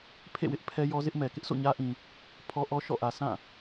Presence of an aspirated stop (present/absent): present